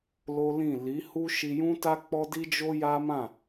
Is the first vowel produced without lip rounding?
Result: no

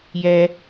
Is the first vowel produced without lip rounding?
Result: yes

